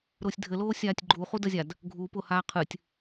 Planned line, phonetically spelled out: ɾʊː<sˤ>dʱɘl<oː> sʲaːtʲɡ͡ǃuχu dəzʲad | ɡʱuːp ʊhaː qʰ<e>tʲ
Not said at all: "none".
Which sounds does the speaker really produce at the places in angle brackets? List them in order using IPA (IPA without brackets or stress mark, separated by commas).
sʲ, oː, ɨ